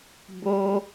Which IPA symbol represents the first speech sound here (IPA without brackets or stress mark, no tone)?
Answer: b